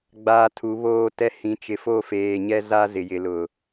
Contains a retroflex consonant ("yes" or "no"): no